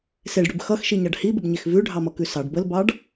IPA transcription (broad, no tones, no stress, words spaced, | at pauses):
seɖɽʉb xʌxʃiɲɑɖ hibəbɲex vʉɖʱɑmʌkʉ sɑɖ bəlbɑɖ